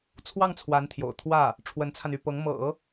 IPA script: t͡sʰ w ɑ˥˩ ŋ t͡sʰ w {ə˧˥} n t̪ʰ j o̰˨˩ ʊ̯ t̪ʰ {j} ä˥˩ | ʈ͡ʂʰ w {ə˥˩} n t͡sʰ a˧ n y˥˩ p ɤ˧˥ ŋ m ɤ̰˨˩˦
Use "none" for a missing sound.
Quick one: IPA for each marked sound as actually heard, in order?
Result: a˧˥, w, ə˧˥

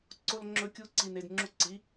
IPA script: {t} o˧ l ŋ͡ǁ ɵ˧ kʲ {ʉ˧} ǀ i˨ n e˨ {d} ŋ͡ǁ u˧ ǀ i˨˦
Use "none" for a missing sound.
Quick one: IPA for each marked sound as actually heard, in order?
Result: ǀ, u˧, d

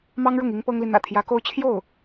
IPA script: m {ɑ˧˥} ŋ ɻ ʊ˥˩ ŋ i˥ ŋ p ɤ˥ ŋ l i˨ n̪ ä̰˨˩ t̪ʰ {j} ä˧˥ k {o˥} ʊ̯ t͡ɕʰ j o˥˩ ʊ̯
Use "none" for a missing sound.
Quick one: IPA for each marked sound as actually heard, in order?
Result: ɑ˥, j, o˥

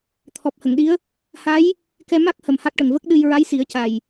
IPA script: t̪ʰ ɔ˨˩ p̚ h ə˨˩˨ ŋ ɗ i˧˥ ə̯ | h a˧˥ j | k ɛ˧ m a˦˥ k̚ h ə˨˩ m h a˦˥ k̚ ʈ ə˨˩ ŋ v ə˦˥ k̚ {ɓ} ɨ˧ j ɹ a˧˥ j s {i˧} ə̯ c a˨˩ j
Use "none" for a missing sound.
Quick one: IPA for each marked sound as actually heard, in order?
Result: ɗ, i˨˩˦

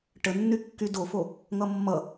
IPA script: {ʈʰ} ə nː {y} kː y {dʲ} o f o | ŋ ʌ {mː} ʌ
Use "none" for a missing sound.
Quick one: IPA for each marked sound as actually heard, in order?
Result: ʈ, y, d, mː

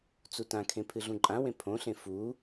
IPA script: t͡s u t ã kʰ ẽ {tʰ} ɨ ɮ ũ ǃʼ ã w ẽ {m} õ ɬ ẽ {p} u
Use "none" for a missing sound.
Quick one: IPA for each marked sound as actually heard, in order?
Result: pʰ, pʰ, f

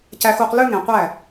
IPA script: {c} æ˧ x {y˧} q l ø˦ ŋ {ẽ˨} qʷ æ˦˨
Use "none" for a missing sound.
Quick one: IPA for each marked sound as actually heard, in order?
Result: c, u˧, ẽ˨

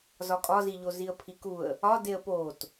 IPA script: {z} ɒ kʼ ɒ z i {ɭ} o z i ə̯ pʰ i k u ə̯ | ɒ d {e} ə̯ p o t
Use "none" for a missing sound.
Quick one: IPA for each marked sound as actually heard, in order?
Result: z, ʎ, e

